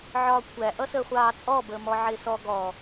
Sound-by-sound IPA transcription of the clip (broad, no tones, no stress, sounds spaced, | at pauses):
ʕ ɒː kʷʰ æ ʔ ʌ s əː χʷ ɑː t͡sʼ ɔ b əː m ɔ ʕ ɪː s ɔ ɡ ɔ